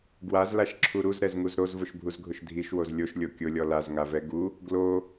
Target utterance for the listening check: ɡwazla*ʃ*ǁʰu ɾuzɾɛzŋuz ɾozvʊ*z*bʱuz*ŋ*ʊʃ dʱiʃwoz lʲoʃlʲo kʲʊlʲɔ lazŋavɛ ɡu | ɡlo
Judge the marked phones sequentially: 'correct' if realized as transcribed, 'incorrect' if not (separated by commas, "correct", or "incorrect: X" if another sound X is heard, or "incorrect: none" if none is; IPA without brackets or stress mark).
correct, incorrect: ʃ, incorrect: ɡʱ